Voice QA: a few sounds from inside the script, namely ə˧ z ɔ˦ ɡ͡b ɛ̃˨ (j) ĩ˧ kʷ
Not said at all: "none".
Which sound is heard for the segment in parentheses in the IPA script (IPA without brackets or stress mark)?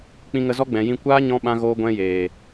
j